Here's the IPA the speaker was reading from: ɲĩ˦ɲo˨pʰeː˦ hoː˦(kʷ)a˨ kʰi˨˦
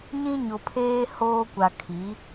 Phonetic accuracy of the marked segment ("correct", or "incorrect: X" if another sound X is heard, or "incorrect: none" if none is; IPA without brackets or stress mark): correct